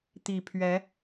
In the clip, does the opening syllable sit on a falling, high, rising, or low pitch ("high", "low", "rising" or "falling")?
low